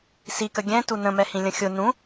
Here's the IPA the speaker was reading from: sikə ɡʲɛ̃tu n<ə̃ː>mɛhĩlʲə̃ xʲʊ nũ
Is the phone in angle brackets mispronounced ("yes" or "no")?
yes